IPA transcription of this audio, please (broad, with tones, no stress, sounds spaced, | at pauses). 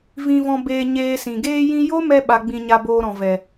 v ĩ˧ v ɔ̃˧ b eː˧ ɲ eː˧ s ĩ˨ ɡ eː˧ j ĩ˧ j o˦ m ɛ˧ ɓ a˧ ɡ͡b ĩ˧ ɲ a˧ b oː˧ ɾ ɔ̃˨ v ɛ˨